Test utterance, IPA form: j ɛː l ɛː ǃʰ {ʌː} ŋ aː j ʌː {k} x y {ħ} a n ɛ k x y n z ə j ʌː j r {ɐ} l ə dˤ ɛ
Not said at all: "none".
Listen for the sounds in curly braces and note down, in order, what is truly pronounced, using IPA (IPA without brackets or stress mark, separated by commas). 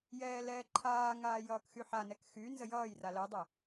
aː, k, ħ, a